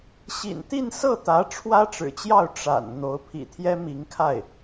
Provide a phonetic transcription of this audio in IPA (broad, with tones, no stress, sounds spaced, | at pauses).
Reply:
ɕ ḭ˨˩ n t̪ i˥˧ n s ɤ˥˩ t̪ ä˧˥ ʈ͡ʂʰ w ä˥ ʈ͡ʂ ɻ̩˨˩ t͡ɕ j ɑ˥˩ ʊ̯ ʈ͡ʂ a̰˨˩ n n̪ o˧˥ ʊ̯ pʰ ḭ˨˩ t̪ʰ j ɛ˥ m i˧˥ ŋ kʰ a˥˩ ɪ̯